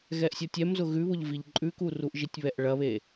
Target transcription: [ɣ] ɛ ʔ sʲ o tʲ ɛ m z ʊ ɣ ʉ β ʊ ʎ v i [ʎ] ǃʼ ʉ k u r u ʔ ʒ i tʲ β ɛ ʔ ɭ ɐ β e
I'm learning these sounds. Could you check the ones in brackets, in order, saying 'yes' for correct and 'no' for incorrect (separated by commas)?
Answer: yes, yes